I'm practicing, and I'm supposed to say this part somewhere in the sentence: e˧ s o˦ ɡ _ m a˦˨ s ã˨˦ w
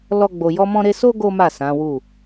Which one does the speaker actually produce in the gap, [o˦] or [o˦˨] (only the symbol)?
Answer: o˦